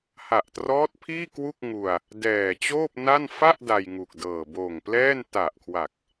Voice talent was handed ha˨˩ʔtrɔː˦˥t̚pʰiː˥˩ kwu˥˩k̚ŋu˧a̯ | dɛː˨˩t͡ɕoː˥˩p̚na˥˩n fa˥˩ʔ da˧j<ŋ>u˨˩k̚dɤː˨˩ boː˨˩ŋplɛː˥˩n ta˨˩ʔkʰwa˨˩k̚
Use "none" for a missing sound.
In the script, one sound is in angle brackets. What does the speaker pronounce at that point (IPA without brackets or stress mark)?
ŋ